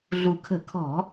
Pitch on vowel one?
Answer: low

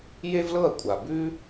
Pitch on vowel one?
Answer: high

